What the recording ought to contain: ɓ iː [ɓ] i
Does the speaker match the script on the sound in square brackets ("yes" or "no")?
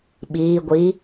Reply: no